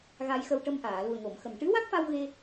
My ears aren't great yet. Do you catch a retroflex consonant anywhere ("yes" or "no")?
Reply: yes